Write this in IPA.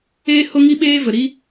eː˦ h o˦ ŋ i˦ ɓ eː˦ v ə˨ ɾ i˦

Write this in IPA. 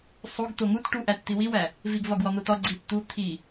sˤ o ɡ t̪ o ŋ u t ʈ u ʔ æ t t̪ i w i w æ | v i ɡ v ɒ ɡ w ɒ n̪ o t ɒ ɡ͡ǀ i t t̪ u t̪ʰ i

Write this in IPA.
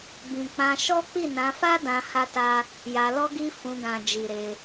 b ĩ˨ k͡p ã˧ ʃ ɔ˦ k͡p i˦˨ n ã˧ f a˦ d ã˧ h a˦ t a˦ | j a˧ l ɔ˦ ɡ i˦ f ũ˧ ɡ ã˨ d͡ʒ i˨ ɾ e˧

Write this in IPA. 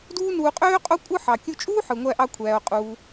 d uː˥ n uː˧ qʼ øː˥ qʼ o˥ kʷʼ ɯ˥ ħ ɑ˩ kʲ u˧ t͡ʃʼ uː˥ ħ ɯ˩ ŋʷ æ˧ ʔ ɑ˧ kʷʰ æː˩ o̯ qʼ uː˩

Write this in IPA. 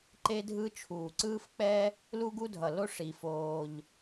ǃ e˥ dʱ ɯ˥ t͡ʃʰ uː˩ ǀ ɯː˥ f k͡p ɛ˥ | l u˥ ɡ u˥ dʱ ʌ˩ l o˥ ʂ i˩ f oː˩ ʎ

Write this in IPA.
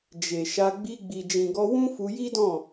d͡ʒ e˨ ʃ a˧ ɡ͡b i˧ ɡ͡b i˨ d͡ʒ ĩ˨ ɡ ɔ˧ w ũ˦ f u˧ j i˦ d ɔ̃˦˨

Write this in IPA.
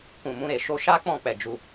k ũ˨ m ũ˧ ɾ e˨ ʃ o˧ ʃ a˦ k͡p ɔ̃˦˨ k͡p ɛ˨ d͡ʒ u˧

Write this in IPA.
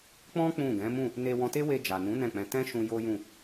k͡p ɔ̃˦ k͡p ũ˦˨ ɡ ɛ̃˨˦ m ũ˦˨ | n e˧ w ɔ̃˧ t e˦ w e˧ d͡ʒ a˨ n ũ˨˦ n ɛ̃˦˨ k͡p ɛ̃˧ t ɛ̃˦ ʃ ũ˧ j o˦ j ũ˦˨

